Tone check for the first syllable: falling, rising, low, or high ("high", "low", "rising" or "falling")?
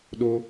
high